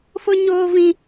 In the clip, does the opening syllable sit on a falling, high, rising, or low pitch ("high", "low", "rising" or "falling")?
high